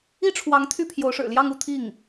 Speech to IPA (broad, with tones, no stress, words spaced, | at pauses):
i˥ʈ͡ʂʰwɑ˧˥ŋ t̪ʰy˥˩pʰjo˧˥ʊ̯ʂɻ̩˨˩ljɑ˥˧ŋ u˥˧t̪ʰi˥˩ŋ